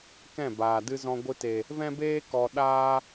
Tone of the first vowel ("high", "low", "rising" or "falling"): falling